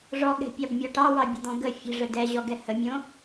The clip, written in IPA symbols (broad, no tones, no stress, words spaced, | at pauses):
ʐɔɠɛ̤pʲɑbmʲɔ ʈɑwɑbʲə̤d̪ɔ̃ ɡə fʲə̤ʐə dɛʑɔɡɛ həmʲõ